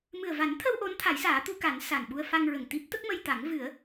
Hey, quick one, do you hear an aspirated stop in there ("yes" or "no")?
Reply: yes